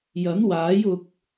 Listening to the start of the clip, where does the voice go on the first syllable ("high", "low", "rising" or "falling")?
rising